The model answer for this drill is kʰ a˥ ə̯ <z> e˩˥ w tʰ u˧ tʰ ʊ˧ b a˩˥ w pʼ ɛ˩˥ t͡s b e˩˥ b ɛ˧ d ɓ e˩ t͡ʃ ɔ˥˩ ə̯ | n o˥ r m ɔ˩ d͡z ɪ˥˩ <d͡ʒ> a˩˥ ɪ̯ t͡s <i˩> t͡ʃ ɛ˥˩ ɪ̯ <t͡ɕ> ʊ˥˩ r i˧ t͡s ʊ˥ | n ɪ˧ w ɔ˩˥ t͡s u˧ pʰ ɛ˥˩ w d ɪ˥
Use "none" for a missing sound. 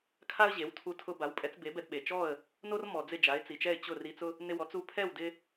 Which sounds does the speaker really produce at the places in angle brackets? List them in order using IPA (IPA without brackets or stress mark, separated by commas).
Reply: ʑ, d͡ʒ, i˩, t͡ɕ